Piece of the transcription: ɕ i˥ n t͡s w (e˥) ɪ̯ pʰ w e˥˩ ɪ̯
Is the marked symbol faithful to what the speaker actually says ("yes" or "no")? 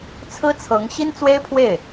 yes